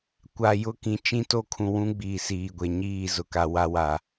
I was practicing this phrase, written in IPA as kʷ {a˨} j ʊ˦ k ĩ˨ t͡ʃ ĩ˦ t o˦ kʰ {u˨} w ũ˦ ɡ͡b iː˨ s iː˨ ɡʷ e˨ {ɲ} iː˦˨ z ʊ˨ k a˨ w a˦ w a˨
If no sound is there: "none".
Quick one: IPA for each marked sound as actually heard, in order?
a˨, ũ˨, ɲ

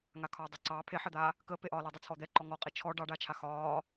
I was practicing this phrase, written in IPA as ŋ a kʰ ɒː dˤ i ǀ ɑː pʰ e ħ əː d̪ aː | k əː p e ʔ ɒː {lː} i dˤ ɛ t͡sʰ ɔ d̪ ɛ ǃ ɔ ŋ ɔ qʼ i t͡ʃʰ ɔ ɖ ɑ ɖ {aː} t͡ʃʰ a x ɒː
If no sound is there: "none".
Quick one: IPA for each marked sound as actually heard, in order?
l, aː

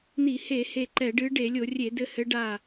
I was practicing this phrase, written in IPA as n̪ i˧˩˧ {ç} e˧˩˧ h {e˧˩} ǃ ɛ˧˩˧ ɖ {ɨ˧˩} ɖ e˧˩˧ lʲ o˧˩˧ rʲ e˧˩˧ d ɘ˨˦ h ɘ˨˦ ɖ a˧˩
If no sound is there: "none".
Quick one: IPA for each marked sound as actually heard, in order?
h, e˧˩, ɨ˨˦

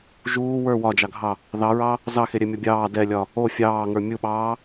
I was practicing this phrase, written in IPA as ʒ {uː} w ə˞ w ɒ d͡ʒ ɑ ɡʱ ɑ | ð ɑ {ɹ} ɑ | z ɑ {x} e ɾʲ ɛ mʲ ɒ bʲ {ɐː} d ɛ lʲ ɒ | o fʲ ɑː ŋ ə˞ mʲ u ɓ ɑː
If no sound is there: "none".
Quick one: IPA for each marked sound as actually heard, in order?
uː, ɹ, x, ɑː

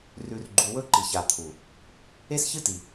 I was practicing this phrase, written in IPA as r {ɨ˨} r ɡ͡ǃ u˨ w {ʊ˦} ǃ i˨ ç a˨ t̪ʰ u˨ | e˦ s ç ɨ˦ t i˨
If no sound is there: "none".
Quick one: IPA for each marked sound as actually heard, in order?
ʉ˨, ɵ˦

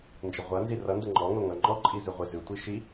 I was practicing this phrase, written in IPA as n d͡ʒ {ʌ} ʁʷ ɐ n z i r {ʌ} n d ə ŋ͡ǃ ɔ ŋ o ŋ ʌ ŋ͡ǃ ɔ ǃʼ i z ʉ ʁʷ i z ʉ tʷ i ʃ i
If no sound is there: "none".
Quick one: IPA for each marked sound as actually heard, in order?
ə, ʌ

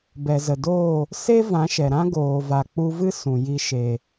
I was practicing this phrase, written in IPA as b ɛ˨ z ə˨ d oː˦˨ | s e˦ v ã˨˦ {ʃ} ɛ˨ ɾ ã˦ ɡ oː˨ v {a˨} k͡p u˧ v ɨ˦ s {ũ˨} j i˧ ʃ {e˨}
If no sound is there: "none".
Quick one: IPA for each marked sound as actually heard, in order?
ʃ, a˨, ũ˨, e˨

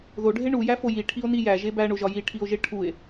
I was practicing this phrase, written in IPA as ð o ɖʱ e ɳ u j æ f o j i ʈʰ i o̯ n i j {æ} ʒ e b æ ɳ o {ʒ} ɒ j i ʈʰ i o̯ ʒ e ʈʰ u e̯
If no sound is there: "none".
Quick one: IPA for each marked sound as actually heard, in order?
æ, ʒ

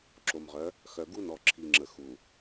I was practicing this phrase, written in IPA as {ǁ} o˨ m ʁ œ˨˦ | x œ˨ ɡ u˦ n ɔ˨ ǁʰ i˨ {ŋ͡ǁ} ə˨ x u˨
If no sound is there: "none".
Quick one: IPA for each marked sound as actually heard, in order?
ǁ, ŋ͡ǁ

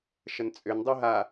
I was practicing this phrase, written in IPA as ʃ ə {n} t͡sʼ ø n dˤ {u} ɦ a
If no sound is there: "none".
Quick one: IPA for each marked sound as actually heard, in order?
n, u

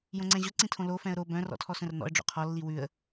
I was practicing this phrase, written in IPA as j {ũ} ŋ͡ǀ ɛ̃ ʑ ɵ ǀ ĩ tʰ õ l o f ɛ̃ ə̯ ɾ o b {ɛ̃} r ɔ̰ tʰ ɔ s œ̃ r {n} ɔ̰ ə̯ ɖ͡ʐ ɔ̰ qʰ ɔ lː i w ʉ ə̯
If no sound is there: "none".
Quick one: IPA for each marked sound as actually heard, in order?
õ, œ̃, n

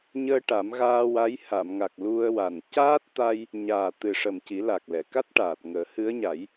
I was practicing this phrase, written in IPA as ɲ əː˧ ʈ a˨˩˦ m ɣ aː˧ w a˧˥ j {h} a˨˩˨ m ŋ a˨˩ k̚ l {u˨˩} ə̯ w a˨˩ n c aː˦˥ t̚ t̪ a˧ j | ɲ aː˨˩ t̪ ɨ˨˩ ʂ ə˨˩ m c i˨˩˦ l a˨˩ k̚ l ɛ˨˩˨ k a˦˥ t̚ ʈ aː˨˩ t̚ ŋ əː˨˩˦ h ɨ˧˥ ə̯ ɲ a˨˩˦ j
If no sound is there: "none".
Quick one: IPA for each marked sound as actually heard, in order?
h, u˧

